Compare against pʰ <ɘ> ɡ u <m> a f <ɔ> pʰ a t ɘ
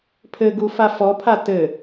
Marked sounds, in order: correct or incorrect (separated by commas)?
correct, incorrect, correct